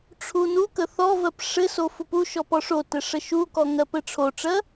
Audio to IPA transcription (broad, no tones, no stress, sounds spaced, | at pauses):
ʈ͡ʂʰ u n u k ə θ ɔ v ɜ p ʂ ɘ s o f u p u ʃ ɔ p ɔ ʂ o t ɘ ʂ ə ʃ u k ɔ ŋ ɜ p ɘ ʈ͡ʂʰ o ʈ͡ʂ ɜ